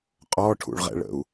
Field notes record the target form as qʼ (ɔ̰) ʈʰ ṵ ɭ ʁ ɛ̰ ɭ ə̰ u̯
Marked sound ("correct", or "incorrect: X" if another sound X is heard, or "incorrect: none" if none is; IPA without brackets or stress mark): incorrect: ɔ